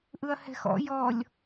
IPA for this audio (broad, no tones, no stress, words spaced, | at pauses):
ʔɯɐ̯hɛ̤xɔ̰ jɔlʲ